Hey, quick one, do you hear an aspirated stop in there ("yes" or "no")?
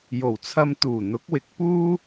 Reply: yes